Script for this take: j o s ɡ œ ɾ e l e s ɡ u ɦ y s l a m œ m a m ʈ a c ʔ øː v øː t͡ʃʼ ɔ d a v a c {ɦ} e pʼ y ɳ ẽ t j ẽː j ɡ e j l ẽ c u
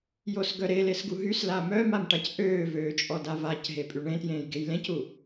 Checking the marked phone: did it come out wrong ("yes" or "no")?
no